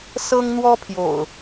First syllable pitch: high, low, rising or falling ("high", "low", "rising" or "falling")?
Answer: high